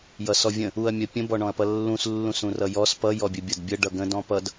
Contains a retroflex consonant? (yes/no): yes